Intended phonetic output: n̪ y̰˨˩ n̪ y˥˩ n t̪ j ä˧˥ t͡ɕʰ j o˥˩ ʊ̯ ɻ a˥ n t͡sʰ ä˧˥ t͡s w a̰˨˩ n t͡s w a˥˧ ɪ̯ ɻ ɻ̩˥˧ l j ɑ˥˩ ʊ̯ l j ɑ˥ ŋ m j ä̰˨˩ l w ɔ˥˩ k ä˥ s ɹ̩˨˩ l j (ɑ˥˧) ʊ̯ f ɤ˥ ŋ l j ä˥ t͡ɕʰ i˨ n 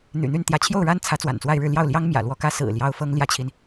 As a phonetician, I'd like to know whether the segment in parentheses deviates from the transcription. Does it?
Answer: yes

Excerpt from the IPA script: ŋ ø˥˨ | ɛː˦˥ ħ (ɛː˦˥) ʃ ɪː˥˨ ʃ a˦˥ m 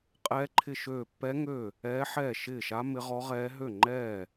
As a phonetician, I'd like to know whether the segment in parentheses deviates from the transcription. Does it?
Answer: yes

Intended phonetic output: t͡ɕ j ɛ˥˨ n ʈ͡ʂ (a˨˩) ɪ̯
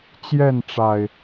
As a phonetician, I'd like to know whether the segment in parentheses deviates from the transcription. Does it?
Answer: no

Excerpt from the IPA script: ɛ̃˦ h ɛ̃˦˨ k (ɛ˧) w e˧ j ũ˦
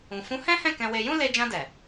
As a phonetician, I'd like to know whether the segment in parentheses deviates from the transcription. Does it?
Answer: yes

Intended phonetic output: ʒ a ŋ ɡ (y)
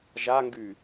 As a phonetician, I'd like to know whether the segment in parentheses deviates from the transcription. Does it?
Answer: no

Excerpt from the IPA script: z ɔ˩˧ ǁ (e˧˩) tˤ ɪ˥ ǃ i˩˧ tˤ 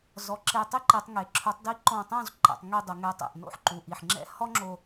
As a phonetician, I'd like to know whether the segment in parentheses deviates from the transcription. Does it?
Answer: no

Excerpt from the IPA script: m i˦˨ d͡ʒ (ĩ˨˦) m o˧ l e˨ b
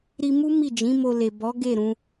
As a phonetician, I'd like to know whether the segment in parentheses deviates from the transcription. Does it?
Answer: no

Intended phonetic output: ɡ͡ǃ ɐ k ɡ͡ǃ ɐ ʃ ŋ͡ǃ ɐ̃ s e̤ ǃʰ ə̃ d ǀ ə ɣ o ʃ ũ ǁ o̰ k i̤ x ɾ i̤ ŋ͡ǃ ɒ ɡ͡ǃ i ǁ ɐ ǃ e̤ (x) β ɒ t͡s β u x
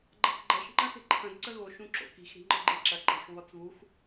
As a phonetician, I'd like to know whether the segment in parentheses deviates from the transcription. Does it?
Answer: no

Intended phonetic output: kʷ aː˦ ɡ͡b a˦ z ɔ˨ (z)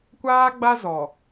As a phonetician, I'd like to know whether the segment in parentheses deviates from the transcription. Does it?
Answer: yes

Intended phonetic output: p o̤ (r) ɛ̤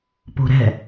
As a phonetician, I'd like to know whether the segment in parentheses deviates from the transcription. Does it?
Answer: yes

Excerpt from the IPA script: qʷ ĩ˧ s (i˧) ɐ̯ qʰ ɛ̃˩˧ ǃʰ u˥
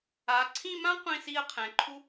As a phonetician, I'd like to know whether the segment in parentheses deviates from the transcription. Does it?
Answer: no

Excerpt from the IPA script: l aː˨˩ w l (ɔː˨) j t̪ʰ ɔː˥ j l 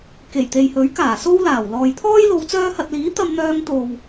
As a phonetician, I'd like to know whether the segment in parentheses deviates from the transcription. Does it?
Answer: no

